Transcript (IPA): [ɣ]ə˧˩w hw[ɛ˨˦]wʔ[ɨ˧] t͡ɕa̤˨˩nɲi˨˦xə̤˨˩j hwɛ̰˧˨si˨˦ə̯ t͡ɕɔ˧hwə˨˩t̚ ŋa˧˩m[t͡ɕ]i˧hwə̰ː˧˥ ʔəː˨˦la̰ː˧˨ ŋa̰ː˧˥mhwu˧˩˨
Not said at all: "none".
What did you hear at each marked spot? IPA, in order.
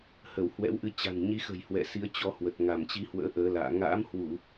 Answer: h, ɛ̰˧˥, ɨ˧, t͡ɕ

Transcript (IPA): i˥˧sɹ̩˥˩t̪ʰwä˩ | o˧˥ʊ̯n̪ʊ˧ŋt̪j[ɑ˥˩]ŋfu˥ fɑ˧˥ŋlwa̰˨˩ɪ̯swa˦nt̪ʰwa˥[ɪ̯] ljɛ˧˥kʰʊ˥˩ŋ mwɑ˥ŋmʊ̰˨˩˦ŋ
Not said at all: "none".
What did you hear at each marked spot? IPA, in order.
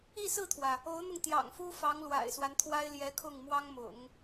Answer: ɑ̰˨˩, ɪ̯

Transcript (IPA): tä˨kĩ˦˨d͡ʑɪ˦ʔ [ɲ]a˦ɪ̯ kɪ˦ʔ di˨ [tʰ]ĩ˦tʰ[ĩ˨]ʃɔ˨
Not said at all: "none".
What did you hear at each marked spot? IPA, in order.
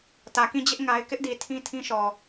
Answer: ŋ, tʰ, ĩ˦

